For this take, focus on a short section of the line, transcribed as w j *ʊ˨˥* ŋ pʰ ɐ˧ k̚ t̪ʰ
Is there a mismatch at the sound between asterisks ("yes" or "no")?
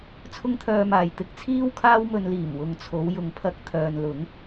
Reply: yes